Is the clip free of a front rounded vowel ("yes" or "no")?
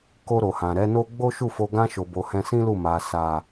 yes